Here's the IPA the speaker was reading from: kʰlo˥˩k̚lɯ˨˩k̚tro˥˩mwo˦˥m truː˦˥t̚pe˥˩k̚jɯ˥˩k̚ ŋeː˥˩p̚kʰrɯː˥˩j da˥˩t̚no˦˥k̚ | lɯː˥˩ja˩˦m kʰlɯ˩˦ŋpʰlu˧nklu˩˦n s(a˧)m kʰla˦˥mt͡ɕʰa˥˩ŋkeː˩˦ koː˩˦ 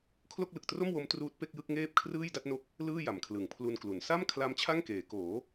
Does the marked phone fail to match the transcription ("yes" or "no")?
yes